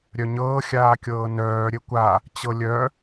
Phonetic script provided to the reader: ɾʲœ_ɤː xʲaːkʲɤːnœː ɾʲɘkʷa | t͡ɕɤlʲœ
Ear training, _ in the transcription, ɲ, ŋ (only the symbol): ɲ